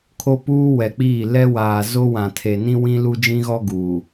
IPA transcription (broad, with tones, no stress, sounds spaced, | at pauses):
kʰ o˦ p uː˦ w ɛ˨ k͡p iː˦˨ l ɛ˦ w aː˨ z o˦ w ã˨ tʰ e˨ n ĩ˦ w ĩ˦ l u˦ d͡ʒ ĩ˦ ɣ ɔ˦ ɡ uː˨